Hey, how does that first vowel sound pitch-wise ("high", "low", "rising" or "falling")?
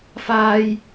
high